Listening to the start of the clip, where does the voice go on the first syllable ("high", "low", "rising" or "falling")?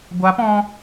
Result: rising